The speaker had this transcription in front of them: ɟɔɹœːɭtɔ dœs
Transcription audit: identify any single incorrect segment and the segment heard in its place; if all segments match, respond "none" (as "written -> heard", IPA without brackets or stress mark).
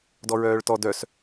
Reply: ɟ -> d